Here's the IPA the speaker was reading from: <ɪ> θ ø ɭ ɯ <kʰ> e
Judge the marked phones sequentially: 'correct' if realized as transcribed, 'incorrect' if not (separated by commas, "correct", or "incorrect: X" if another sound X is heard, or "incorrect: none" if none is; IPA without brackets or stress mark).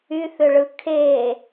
incorrect: y, correct